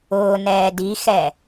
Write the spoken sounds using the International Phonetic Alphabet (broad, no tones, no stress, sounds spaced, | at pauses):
ʊː n ɛː d i x ɛ